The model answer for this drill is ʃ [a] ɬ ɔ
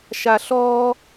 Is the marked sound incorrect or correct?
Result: correct